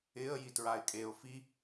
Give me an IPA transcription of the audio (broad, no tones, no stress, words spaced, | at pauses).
ɪə̯ jitɹaɪ̯kʼeʊ̯ fi